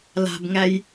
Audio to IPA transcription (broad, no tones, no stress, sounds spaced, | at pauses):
l a̤ b ŋ æ j